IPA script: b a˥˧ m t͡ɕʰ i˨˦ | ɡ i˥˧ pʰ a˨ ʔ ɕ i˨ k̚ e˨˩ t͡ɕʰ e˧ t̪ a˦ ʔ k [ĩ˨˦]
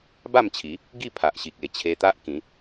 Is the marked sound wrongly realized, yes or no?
no